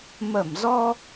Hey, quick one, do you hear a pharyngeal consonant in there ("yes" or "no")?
no